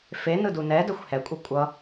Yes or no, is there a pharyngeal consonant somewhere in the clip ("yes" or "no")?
no